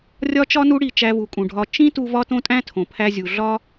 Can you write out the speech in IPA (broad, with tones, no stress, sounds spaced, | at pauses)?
rʲ ɒ˦ t͡ʃ ɒ˦ n u˦ ɽ i˦˨ t͡ʃ æ˧ v u˨ kʼ ũ˨ ɖʱ ɒ˧ t͡ʃ ĩ˦ t u˧ v ɒ˦ t õ˦ tʼ æ̃˦ tʰ õ˨ pʰ æ˧ zʲ u˨ ɮ ɒ˦